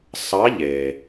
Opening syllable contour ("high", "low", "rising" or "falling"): rising